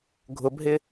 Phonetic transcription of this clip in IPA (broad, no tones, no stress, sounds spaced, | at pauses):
ɡʱ ʊ b ɦ ɪ